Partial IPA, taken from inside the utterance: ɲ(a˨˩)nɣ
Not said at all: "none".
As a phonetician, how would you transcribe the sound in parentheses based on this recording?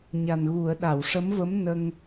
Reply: a˨˩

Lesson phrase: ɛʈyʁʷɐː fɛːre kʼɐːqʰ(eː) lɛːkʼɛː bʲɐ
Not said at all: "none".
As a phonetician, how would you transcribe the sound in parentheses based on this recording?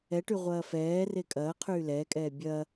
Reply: yː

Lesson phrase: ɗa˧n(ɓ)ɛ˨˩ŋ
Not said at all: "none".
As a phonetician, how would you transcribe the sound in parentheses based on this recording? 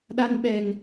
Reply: ɓ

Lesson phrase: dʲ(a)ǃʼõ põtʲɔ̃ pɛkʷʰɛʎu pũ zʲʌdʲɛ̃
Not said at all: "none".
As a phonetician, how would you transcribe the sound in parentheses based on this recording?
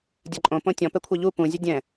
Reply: ʌ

